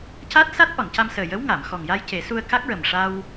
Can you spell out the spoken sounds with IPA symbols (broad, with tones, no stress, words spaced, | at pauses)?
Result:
ca˦˥t̚sa˦˥t̚ ʔɔ˨˩˨nca˧msəː˨˩jə˧˥w ŋa˨˩˨m xɔ˨˩ŋja˧j ce˨˩˦su˧ə̯ ka˦˥k̚ɹə˨˩mʂa˧w